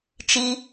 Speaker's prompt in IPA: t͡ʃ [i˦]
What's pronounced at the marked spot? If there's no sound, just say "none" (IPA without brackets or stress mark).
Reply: i˦